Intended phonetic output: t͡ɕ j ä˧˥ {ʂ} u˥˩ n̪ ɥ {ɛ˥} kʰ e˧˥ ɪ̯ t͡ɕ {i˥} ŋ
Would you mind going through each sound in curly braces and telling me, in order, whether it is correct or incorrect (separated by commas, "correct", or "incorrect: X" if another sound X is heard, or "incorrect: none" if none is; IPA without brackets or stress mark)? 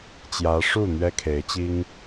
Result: correct, correct, correct